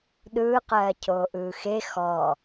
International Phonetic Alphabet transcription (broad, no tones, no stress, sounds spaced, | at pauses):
ɗ ɯː q ɜː cʰ oː ʔ ɯː x e x ɔ